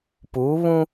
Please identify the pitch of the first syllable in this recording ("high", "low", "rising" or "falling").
rising